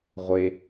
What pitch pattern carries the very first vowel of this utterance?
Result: low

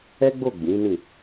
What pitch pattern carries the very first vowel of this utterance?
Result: high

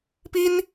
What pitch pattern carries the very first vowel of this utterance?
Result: high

